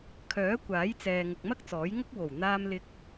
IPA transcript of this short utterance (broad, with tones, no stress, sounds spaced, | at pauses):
kʰ œː˨˥ kʷ aː˨˥ j t͡s ɛː˨ ŋ ʊ˨ k̚ m ɐ˥ k̚ t͡s ɔː˨˥ j ŋ ʊ˥ k̚ w o˨˩ w n̪ aː˧ m l ɪ˧ k̚